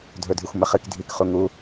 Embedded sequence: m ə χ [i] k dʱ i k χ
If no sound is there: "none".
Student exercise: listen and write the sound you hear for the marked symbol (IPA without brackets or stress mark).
ɨ